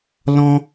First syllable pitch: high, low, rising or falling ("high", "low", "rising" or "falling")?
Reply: high